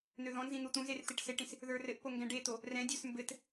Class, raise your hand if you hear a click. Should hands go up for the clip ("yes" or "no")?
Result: no